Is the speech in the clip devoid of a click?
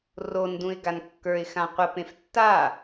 yes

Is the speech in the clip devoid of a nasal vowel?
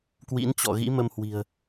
yes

